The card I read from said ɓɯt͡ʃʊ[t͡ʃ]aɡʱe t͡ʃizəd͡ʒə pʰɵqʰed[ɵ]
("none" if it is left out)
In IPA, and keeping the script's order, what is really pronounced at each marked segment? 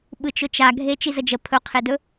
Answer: t͡ʃ, ɵ

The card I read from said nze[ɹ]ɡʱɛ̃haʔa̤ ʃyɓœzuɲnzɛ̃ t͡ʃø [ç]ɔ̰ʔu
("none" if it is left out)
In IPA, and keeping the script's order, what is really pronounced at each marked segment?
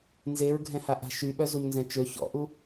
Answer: ɹ, ç

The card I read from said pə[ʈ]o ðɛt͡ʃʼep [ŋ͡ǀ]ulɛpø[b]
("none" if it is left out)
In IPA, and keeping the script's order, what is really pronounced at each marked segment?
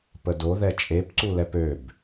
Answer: d, ǀ, b

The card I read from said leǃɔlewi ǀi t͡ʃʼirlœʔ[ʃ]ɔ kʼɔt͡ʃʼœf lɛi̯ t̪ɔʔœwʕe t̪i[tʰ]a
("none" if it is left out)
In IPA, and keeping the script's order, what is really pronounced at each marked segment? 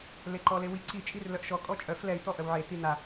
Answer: ʃ, n̪

